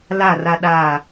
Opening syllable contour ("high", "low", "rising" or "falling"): falling